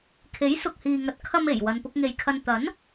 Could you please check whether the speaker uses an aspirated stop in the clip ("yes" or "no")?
yes